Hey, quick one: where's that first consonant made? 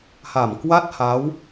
throat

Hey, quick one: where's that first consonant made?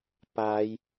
lips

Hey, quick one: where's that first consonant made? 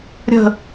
tongue tip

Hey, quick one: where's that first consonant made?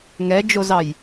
velum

